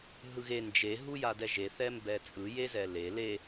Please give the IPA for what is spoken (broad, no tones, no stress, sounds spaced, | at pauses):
ɦ ɯ ɣ e n d͡ʒ e ɦ u j a d ɛ ʒ e θ ɛ m b ɛ t͡sʼ ɯ j e z ɛ l e l e